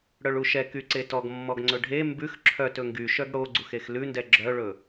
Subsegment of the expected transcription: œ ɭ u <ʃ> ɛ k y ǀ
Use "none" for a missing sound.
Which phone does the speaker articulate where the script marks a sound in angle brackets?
ʃ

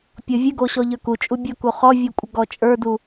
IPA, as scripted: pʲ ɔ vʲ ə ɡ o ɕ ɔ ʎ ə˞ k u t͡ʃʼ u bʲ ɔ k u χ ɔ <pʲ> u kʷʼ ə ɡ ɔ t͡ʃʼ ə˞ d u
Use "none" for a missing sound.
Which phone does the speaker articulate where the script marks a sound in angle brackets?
vʲ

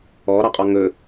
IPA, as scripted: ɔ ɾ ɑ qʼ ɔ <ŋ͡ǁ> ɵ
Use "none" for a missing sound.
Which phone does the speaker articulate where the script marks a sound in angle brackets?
ŋ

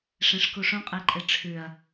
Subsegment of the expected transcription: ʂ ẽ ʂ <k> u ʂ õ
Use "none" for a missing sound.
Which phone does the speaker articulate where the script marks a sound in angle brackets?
k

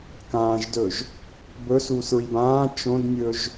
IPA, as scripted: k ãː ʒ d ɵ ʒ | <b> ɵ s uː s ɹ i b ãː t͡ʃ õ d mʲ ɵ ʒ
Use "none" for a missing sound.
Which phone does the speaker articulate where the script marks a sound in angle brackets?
b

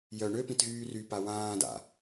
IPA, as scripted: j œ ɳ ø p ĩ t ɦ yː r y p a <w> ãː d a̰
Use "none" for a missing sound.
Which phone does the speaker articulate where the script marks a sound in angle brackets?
w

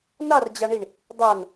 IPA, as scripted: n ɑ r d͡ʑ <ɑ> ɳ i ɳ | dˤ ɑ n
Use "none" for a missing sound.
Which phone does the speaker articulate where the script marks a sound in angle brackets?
ɑ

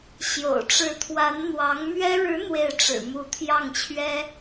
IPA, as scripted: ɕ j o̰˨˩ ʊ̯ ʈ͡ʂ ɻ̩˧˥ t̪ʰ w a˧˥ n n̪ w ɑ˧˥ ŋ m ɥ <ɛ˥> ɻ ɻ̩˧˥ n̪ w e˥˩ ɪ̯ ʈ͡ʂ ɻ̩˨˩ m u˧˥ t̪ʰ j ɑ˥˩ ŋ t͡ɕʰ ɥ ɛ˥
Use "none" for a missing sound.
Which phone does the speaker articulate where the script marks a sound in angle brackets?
ɛ˥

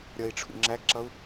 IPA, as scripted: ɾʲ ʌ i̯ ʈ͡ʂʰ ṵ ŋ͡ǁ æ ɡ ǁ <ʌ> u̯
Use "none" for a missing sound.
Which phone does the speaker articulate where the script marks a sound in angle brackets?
ʌ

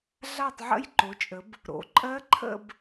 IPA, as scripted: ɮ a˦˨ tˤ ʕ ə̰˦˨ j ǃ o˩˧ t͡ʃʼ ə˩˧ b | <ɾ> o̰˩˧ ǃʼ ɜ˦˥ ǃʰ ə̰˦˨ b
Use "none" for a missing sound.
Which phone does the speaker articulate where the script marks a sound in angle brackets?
ɾ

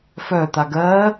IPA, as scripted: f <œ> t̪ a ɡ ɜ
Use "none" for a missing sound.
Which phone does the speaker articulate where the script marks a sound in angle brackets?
œ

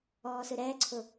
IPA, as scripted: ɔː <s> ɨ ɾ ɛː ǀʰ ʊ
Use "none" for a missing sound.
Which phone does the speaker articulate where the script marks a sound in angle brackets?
s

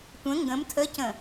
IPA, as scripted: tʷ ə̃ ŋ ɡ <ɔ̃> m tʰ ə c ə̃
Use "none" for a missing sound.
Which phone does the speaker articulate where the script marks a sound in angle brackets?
ə̃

